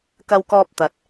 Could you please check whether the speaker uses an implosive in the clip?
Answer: no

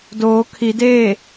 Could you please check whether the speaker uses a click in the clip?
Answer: no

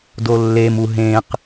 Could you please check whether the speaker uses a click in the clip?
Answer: no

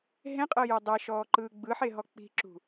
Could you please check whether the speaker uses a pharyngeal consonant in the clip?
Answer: yes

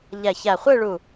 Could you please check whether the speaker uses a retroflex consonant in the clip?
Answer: yes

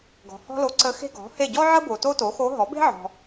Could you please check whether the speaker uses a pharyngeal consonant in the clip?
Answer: yes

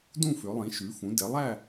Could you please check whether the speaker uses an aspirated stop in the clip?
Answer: no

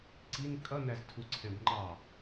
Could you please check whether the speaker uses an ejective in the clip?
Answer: yes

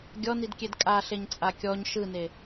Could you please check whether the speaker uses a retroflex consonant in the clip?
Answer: no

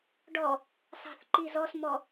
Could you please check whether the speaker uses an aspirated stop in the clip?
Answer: no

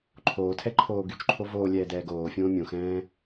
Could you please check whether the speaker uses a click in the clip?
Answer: yes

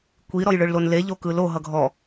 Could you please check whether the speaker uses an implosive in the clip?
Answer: no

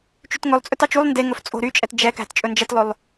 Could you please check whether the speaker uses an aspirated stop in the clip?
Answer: no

